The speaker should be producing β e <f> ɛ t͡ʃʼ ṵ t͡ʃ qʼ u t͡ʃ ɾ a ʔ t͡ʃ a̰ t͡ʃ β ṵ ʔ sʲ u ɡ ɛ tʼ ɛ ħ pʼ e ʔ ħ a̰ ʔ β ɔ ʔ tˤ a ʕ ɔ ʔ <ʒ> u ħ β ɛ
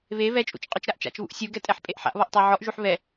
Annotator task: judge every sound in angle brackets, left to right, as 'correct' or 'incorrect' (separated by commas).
incorrect, correct